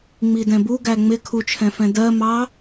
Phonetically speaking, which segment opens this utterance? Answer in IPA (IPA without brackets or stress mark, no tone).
ŋ͡m